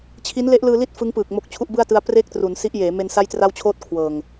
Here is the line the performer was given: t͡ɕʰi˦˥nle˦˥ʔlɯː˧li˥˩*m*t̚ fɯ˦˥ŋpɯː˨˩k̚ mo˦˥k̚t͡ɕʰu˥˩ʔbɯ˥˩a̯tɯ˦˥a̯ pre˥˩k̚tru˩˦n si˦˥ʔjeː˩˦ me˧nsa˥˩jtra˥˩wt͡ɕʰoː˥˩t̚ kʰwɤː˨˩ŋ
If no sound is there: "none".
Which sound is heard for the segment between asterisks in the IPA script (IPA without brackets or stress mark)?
none